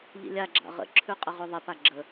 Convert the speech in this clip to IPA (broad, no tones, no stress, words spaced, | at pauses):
ʎḭlʲaɡ͡ǁa̰ ʁə̰ǁʰʉ qʼəʁʉðˤɪpa ɡ͡ǁə